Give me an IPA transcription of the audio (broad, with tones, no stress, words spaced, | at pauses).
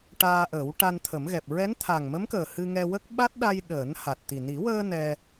ʈaː˧ʔəː˨˩˦wʈa˧n t̪ʰə˨˩˦mɣɛ˨˩p̚ ɹɛ˧˥nt̪ʰa˨˩ŋmə˧˥mkəː˨˩ hɨ˧ŋɛ˧wə˦˥k̚ ɓa˦˥t̚ɗa˧jɗəː˨˩˦n ha˨˩t̚t̪i˨˩ ni˨˩˦wəː˧ nɛ˧